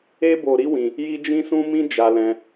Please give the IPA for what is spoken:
e˦ b o˧ ɾ i˦ w ĩ˧ | j i˦ d͡ʒ ĩ˦ s ũ˦ m ĩ˦ d͡ʒ a˦ l ɛ̃˦

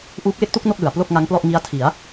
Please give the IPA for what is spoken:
ʔ uː˦˥ k̚ w e˥˩ k̚ t u˥˩ k̚ n o˥˩ k̚ l ɯ˩˦ a̯ p l o˥˩ k̚ ŋ a˦˥ ŋ p l ɔ˥˩ ʔ ŋ i˦˥ a̯ tʰ i˩˦ a̯

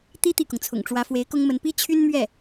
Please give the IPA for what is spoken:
t̪ i˥ t̪ i˥˩ k ʊ˩ ŋ t͡sʰ ʊ̰˨˩ ŋ ʈ͡ʂ w ä˧˥ f w e˧˥ ɪ̯ k ʊ˥ ŋ m ə˧˥ n p i˥ t͡ɕʰ y˥ n m ɥ ɛ˥˩

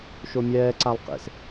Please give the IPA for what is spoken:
ʃ o mʲ ɛː ǀ a lˠ q ḛ s

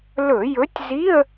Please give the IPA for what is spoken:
l ɵ˧˩˧ j ɵ˨˥ tʲ z i˧˥˧ ə̯

